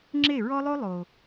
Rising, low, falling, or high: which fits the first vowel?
falling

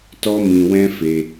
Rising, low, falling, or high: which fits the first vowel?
high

